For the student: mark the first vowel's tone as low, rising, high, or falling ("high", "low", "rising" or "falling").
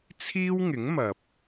high